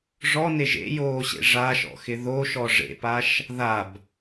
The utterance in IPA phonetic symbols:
ʐɔneʒ ḛjoːɕḛ ʐaʃɔ̰xɪ ðoʃɔ ʐḛpaʃ | ðab

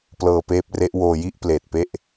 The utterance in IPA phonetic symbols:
plɤː˧peː˦˥p̚re˦˥ʔ woː˧ji˥˩ʔpleː˨˩t̚pe˥˩ʔ

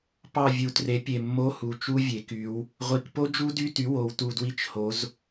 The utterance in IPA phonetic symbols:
pɑ˦˨vʲu˩˧tre˩˥ pʲe˨˩mːo˧˥˧hu˨˩ t͡ʃu˦˥vʲe˩˧ky˩˧w | ʁʷi˩˧k po˦˥d͡ʒu˦˥dy˧˥˧ty˩˥ wo˩˧wtu˨˩dwi˦˨t͡ʃ ho˩˧z

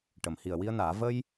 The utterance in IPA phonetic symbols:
ʈə˨˩˨mhi˨˩ə̯ wi˧ə̯naː˨˩˦ və˧j

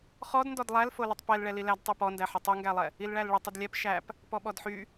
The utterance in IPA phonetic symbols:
χɔdndɔd lˠælfolətˤ pɛlɭɛ lilæd tˤypɔndæħə tˤyŋɡælˠɛ | ilɭælɭətˤ ədlʲɛp ʃæp | pɔɓɔdħy

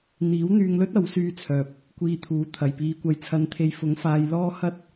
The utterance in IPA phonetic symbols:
n̪iː˨˥wn̪yː˧ŋlɵ˥t̚ ɐ˨˥wsyː˧t͡sʰœː˨p̚ | kʷiː˧t̪ʰuː˨˥ t̪ʰɐ˨˩jpiː˨˧kʷɐ˨j t͡sʰɐ˨˧nt̪ʰe˨˧j fʊ˨˥ŋfaː˧j lɔː˥ hɐ˥t̚

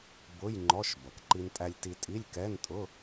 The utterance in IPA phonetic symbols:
bʊ˧˥˧j ŋ͡ǃɔ˧˥˧ʃ bʌ˩kǃi˧ntʼæ˧lʲ ti˧tʼi˧˥˧lʲkɛ˧˥˧ntʼʊ˧˥˧

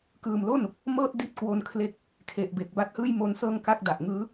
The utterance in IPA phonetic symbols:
kɯː˨˩mlo˥˩n | mɤː˥˩t̚di˦˥t̚ kwo˧nkʰle˦˥k̚ | kʰe˨˩ʔbe˨˩k̚ ba˦˥t̚hɯː˥˩jmo˦˥nsɤː˥˩ŋ ka˦˥k̚da˨˩ʔŋɯː˦˥

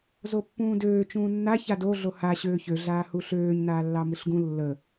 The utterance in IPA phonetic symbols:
zopːũːdøː t͡ʃũːnːa çado ɮoha ɕøːçø ɮaːhuɬøːɲ naːlːɑmɯɬɡũ lːə

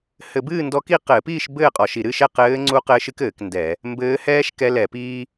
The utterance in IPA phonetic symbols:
hɘ˧˩˧bɨː˥˨ndɔ˧˥ki˥˨ qɘː˧˩˧piː˥˨ʃ bɘː˥˨qʼɔ˧˩˧ʃi˧˩˧ ɾɨ˥˨ʃɛ˥˨ qɘː˧˥ŋ͡ǀu˧˥ qɘː˧˥ʃɨ˥kɘː˧˩˧k ndɛ˧˩˧ | mbɘː˧˥hɛː˥ʃ kɛ˧˥lɛ˧˩˧piː˥

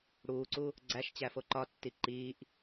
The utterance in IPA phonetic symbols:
ɽuːǀu | ɡ͡ǀæʃt͡ɕæ foǃɒtːi ǃiːʔ

